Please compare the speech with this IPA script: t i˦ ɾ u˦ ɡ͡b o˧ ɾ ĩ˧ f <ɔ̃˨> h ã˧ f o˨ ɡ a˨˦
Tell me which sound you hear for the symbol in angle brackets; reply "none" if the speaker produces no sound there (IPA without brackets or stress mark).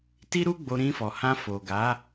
ɔ˨